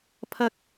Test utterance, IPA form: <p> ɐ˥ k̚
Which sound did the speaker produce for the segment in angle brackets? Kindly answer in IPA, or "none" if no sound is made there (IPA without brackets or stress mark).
pʰ